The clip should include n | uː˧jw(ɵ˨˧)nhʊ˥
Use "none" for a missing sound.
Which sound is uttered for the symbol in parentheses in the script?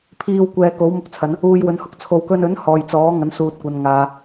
ɵ˨˧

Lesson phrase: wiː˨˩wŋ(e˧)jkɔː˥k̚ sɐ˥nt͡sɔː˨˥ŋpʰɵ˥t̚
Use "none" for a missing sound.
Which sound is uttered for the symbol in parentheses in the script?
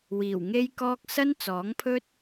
e˥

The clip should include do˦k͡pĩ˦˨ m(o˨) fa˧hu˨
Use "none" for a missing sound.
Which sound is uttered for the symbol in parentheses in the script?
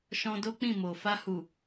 o˨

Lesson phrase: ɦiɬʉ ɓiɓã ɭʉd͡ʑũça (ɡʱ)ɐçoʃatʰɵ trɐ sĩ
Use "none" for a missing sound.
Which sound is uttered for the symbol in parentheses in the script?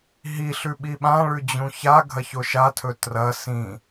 ɡʱ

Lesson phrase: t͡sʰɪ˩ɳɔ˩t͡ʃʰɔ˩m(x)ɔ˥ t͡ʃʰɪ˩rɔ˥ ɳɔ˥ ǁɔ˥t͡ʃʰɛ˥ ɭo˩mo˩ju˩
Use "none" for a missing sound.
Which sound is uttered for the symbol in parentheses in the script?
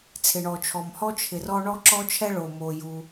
h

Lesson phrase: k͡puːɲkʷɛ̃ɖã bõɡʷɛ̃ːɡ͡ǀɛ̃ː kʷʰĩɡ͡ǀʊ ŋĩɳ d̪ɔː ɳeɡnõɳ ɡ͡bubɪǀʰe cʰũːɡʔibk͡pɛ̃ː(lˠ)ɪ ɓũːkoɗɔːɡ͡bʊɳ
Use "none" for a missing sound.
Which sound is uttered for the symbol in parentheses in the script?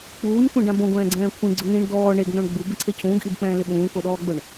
l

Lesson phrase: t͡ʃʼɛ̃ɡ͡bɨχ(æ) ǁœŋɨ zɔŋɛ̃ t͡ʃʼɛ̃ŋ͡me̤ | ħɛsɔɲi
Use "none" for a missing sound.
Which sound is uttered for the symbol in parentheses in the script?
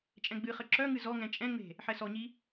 ə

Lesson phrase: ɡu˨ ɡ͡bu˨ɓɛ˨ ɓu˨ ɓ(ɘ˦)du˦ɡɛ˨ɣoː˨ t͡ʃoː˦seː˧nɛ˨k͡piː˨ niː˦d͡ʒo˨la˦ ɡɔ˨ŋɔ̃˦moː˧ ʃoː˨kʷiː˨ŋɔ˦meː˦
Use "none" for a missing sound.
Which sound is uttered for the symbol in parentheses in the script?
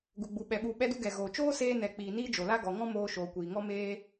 ɛ˦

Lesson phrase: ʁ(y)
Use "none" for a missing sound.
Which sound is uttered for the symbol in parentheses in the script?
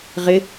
ɪ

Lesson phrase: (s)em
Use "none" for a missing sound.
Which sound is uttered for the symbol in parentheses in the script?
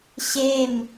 ɕ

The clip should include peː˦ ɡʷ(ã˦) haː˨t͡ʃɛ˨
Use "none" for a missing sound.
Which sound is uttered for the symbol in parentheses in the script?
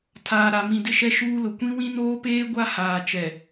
a˦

